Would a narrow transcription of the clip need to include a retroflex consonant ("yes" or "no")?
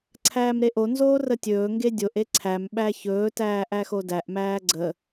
no